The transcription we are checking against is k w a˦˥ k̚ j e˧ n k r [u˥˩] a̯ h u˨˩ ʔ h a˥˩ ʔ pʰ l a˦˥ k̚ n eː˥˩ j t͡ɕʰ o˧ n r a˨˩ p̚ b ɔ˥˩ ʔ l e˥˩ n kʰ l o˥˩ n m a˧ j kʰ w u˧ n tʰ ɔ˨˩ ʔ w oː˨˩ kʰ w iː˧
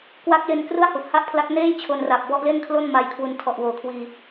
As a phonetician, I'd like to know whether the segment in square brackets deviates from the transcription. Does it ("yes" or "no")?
no